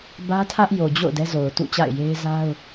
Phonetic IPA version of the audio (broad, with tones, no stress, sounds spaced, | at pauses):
b ä˦ tʰ ä˦ ʔ j o˨ d͡ʑ o̰˦˨ ʊ̯ d ɛ˦ z o˨ ʊ̯ t ṵ˦˨ t͡ɕ a̰˦˨ ɪ̯ j e˦ ɪ̯ z a˦ ʊ̯